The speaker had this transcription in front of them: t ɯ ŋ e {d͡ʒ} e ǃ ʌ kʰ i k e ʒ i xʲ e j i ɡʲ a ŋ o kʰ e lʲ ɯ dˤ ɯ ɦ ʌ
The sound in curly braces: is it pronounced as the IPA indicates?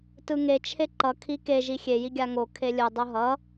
no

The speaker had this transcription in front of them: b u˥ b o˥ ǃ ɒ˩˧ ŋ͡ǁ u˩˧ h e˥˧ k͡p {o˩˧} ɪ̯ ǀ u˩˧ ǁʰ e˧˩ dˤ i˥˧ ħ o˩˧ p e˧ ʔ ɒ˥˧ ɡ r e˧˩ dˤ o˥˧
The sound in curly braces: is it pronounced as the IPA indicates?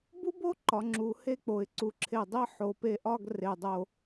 yes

